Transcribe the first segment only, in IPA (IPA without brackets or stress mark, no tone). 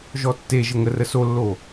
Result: ʒ